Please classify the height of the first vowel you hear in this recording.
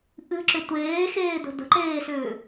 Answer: high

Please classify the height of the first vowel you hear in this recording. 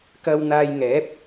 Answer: low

